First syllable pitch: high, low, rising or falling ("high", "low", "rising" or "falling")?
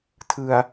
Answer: low